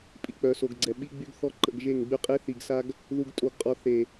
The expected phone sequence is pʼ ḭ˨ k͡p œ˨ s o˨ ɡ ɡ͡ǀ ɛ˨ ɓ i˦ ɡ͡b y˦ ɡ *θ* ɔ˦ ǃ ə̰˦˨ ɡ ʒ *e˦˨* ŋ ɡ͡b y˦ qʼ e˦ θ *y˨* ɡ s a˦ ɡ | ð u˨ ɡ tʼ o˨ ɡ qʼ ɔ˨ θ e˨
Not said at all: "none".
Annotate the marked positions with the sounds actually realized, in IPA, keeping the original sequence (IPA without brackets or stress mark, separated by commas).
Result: θ, e˦˨, i˨